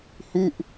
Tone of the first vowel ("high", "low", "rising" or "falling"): falling